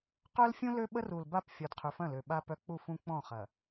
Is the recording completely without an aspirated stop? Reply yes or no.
no